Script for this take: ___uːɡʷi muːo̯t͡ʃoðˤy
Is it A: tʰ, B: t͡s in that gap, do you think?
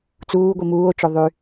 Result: B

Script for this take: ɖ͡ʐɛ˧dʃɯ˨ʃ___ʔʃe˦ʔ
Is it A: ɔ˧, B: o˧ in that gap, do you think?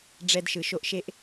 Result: B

